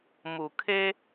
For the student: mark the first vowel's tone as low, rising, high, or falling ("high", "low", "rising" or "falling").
low